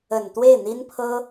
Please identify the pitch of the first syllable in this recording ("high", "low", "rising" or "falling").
low